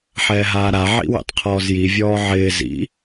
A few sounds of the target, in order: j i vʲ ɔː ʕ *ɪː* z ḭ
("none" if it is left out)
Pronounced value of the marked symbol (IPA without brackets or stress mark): ɪː